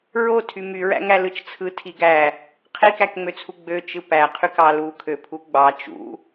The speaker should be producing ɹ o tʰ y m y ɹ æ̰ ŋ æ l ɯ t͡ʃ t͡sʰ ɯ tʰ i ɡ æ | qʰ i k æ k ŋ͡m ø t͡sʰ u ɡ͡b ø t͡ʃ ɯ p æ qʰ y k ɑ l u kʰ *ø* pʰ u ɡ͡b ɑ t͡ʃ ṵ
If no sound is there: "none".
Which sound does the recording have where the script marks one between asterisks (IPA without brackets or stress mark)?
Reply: ø